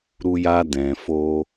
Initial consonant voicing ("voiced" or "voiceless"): voiced